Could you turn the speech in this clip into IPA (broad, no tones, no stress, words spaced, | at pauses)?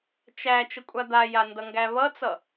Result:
t͡ʃæ t͡ʃəkʷʼad̪aja ndʌŋɡæβʌt͡sʌ